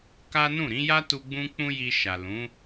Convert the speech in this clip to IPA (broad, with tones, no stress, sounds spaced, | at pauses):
k a˦ n ũ˦˨ ɾ ĩ˨˦ j a˦ t u˧ ɡ͡b ũ˦ k͡p ũ˦ j i˧ ʃ a˨ l ũ˨˦